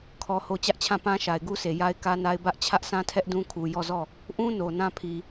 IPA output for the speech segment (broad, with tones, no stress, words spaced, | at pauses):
kʰɔ˨ho˨ t͡ɕä˦ʔt͡ɕʰã˦˨pã˦ ʃa˨ɪ̯ɡu˦sʰe˨ ja˦ɪ̯kä˦na˦ɪ̯ bä˦ʔ t͡ɕʰä˦ʔsã˦tʰɛ˦ʔ dũ˦kʰu˨ jɔ˦˨zɔ˦˨ | ʔũ˦ no˨nã˦pʰi˨